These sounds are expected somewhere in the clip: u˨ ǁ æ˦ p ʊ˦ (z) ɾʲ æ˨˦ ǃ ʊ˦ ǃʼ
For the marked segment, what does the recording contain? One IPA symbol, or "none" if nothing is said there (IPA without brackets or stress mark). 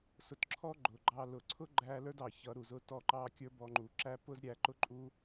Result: z